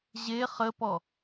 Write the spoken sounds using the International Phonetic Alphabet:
ʑ e χ ə p ɔ

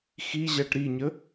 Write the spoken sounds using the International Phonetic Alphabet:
x i ʑ æ ʈ ɾ i ɲ ə

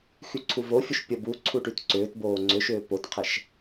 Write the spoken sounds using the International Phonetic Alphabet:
x y ǀʰ u v o fʲ u ʃ pʲ ɐ b u ǀʰ u ʈ y t ǀ ʏː t b oː ŋ͡ǀ ʏ ʃ ʏː p o t qʰ ɛ ʃ

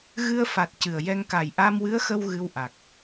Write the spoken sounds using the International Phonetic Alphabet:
ɣ ɨ˧ ə̯ f a˨˩ t̚ c ɨ˨˩ ə̯ j ɛ˧ ŋ k a˨˩ j ʔ a˧ m w ɨ˧˥ ə̯ x ə˧ w ɣ ɨ˧ w ʔ a˨˩ k̚

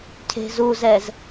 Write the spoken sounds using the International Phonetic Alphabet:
cʰ e̤ z u z ɛ z

